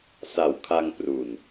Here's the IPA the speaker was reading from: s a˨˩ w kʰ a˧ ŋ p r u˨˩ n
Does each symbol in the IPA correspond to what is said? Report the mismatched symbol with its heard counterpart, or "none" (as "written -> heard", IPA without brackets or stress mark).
none